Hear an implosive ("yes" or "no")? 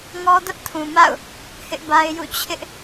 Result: no